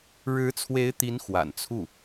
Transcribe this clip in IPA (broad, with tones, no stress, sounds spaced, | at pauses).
ɻ ɻ̩˧˥ t͡sʰ w e˧˥ ɪ̯ t̪ i˧˥ n x w a̰˨˩ n t͡sʰ u˥˩